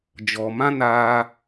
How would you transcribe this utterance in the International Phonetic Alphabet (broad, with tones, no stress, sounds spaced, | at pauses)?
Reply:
d͡ʒ ɔ˨ m ã˦ n aː˧